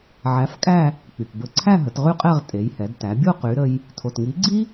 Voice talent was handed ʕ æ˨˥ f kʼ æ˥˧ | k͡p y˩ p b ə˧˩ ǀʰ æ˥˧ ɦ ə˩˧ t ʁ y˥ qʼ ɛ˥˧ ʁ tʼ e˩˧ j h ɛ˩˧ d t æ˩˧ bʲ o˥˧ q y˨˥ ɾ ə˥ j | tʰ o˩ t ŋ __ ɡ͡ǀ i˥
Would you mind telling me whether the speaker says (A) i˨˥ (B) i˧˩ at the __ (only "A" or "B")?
A